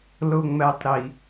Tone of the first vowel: low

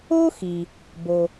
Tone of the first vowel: high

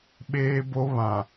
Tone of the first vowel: high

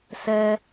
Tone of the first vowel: high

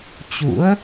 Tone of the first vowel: rising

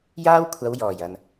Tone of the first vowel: high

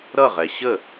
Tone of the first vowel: falling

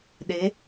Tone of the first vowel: rising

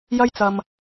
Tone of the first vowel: high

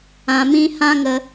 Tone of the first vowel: low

